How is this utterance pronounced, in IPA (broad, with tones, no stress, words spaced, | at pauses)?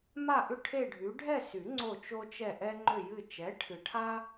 ma˥˧ʔʏ˥˧ ʈʰe˥˧ɖʱy˨˥ ɖʱɛ˥˧sy˨˩˦ ŋ͡ǀo˥˧t͡ʃo˥t͡ʃɛ˥˧ ʔɛ˥ŋ͡ǃʏ˥˧jɨ˥˧ t͡ʃɛ˨˥ ʈʰɨ˨ʈʰa˥